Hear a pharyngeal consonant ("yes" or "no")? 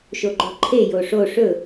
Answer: no